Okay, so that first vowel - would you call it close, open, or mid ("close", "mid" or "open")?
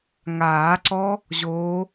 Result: open